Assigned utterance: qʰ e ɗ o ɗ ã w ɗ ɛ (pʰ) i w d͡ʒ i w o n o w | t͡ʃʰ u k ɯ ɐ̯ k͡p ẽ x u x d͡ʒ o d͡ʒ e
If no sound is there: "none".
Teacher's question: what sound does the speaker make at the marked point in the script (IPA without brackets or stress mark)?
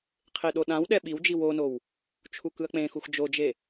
ɓ